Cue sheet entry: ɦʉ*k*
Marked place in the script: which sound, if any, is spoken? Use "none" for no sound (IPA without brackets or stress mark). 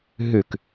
k